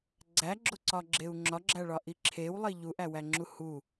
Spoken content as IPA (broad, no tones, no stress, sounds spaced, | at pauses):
ɡ͡ǀ æ ɡ͡ǁ o ǀ ɒ ɡ͡ǁ e u̯ ŋ͡ǁ ɒ ɡ͡ǁ æ ɭ ɒ ʔ i ǁʰ e w lˠ i ʎ u ʔ æ w æ ŋ͡ǁ u h u